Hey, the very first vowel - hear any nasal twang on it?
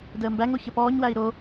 no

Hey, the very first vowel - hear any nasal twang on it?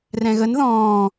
yes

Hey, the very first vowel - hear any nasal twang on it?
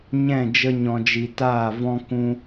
yes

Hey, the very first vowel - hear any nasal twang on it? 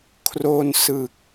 no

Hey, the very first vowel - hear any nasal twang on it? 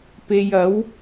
no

